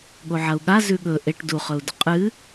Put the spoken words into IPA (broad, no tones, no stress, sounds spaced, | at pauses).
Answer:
ɠ o ʕ ɐ u̯ ɠ a z ʉ ɠ ɵ ʔ e ʈ d u χ ɵ u̯ d ɵ qʼ ɨ